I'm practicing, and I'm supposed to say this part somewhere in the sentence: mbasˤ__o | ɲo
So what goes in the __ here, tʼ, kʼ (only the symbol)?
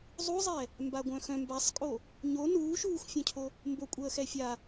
kʼ